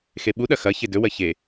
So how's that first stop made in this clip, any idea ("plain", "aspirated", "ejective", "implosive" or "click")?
implosive